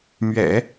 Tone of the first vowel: low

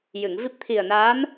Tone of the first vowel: low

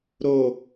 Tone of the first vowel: low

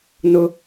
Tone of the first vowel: high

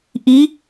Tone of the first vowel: rising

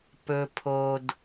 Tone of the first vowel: low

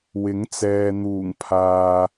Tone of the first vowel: rising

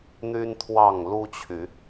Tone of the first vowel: high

